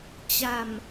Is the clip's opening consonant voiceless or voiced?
voiceless